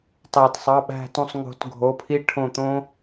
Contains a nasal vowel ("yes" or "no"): yes